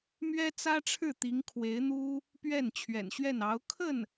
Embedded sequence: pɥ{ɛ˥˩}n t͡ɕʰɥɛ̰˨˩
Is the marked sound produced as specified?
yes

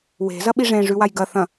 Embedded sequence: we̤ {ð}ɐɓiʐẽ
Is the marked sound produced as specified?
no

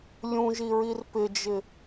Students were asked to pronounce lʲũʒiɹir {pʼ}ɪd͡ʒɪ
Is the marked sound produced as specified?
no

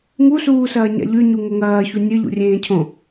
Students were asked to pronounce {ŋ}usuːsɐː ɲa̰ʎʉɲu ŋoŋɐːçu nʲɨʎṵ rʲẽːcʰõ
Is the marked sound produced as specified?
yes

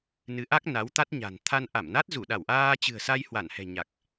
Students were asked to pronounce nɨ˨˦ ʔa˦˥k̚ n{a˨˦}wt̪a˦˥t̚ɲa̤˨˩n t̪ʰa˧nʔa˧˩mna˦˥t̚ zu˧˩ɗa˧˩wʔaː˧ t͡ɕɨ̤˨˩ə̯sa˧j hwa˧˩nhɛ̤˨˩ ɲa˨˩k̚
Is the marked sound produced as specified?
yes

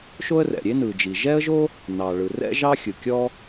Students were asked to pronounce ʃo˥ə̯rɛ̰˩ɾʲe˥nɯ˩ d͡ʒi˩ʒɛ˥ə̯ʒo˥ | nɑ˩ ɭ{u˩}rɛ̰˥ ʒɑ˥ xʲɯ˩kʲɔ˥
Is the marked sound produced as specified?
no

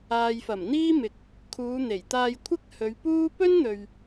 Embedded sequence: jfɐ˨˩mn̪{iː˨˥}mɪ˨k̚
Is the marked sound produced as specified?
no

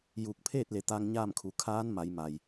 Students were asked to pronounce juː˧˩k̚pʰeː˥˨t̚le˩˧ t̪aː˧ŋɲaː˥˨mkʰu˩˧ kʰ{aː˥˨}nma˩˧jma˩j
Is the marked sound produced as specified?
no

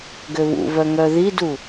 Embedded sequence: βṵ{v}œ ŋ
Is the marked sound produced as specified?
yes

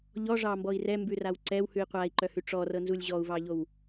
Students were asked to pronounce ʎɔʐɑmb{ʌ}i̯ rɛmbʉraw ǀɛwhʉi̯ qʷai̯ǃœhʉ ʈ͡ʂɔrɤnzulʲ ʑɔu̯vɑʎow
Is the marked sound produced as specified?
no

